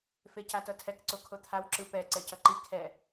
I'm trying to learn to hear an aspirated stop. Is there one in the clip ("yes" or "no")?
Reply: yes